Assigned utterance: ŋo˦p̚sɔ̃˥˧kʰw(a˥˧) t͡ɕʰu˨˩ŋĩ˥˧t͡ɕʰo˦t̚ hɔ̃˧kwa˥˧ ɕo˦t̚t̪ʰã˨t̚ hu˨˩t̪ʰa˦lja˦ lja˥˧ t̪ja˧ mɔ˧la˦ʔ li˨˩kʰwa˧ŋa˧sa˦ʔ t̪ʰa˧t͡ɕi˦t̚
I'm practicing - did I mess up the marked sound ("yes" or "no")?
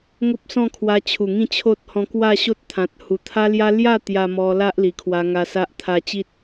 yes